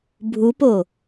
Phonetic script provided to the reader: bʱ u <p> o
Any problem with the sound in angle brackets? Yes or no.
no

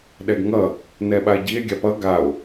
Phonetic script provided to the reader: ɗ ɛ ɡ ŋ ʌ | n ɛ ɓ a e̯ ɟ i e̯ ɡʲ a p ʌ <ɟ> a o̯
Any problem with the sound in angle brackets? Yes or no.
yes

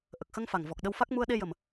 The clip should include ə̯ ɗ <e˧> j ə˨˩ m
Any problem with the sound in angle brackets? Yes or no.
no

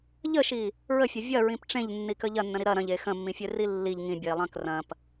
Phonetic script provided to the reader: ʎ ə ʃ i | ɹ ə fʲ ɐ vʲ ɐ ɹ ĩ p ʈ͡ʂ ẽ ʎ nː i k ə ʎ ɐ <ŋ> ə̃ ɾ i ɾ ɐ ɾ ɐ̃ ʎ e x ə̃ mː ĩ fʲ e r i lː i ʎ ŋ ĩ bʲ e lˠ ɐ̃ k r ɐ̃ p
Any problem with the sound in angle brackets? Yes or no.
yes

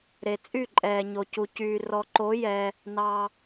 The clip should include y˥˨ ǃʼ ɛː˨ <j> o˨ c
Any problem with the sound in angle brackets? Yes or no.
yes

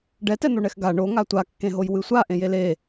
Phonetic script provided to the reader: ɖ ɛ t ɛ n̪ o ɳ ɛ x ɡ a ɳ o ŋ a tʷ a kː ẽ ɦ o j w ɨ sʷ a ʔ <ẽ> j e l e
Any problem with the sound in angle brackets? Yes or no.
no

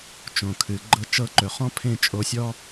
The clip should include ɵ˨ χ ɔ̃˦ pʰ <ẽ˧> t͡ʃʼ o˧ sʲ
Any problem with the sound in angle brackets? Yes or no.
yes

